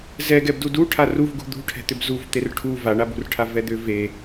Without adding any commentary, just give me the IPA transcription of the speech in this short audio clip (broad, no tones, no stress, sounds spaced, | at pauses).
z ɛ ɡ ɛ b d u d u ʈʰ a r u v ɡ ṳ d̪ ṳ ʈʰ ɛ̤ t̪ ʏ b z u v t̪ e r ʈʰ u v a ɳ a b ṳ r ʈʰ a v ɛ d̪ ʏ v e